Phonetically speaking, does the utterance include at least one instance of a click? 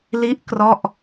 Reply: no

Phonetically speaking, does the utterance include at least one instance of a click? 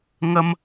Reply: no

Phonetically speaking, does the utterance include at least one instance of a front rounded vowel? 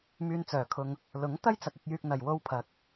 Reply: yes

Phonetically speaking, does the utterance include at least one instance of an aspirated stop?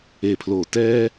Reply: yes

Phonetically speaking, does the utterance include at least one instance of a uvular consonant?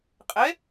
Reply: yes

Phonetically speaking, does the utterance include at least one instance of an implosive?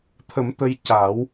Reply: no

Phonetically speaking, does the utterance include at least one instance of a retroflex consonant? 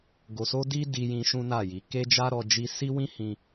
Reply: no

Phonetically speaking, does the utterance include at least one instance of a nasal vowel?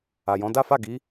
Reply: yes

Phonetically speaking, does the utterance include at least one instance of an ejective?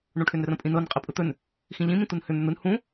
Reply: yes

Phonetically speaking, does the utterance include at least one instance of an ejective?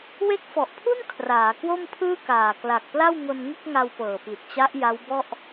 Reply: no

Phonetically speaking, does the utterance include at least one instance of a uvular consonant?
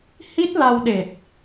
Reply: no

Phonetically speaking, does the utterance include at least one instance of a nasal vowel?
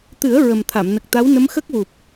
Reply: no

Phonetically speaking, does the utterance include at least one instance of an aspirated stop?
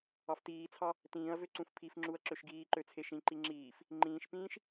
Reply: yes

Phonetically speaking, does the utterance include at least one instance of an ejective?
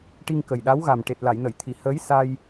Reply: no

